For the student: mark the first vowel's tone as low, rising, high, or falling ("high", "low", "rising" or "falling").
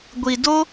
low